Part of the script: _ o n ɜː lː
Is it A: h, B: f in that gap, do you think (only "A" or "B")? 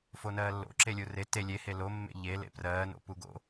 B